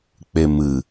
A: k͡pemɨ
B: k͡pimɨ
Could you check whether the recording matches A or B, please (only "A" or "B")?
A